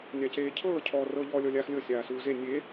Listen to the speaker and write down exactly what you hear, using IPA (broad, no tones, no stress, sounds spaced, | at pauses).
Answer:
nʲ a c eː cʰ ɤː cʰ ɔː r ɤ ʎ ɔː lʲ ɔ lʲ aː x lʲ ɤ sʲ aː s uː z e nʲ e